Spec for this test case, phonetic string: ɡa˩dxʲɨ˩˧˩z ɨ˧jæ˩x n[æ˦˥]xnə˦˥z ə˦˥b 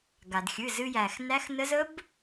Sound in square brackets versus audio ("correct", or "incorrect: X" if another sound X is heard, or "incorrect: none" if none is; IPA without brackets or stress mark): correct